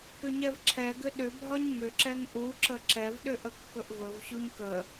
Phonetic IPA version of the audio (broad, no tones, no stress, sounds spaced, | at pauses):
k ʏ ɲ ɛ v ǁʰ ɛ ɡ ʏ ɗ ʏ bʱ ɒ ɲ m ʏ ǁ ɛ ŋ ʔ u ǁ ə ǁ ɛ v ɗ ʏ ʔ ə kː ɵ ʔ v ɵ v ɕ u ɲ k ə